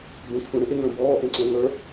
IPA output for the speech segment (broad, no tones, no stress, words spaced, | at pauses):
bə̃ kʷʰə̃ɽə̃ʔeŋə̃ː bɔːʔẽǀə̃ː ŋə˞